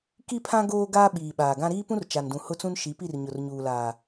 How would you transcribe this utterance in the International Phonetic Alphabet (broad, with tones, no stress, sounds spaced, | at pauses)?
k i˦ pʰ ã˦ ɡ oː˦ ɡ aː˦ ɓ iː˨ ɓ aː˨ ɡ ã˦ ɾ iː˦ p ũ˦ r t͡ʃ a˨ n d ũ˨ h ʊ˦ t͡s ũ˦ n ʃ i˨˦ p i˦˨ r ɲ ʊ˨ r ɲ uː˨ l aː˨